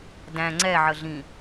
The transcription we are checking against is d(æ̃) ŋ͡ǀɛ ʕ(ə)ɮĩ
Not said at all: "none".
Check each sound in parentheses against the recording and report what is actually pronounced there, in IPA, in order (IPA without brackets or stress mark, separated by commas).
æ̃, ə